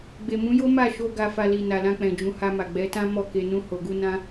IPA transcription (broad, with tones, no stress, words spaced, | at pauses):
ɡ͡be˨mũ˨˦jo˦ ma˦˨ʃo˧ ɡa˧fa˧li˨ na˨lã˧k͡pɛ̃˨ d͡ʒũ˨ha˧ma˨ ɡ͡bɛ˨˦tã˦ mɔ˦˨ke˧ nũ˧ho˨ɡu˧nã˧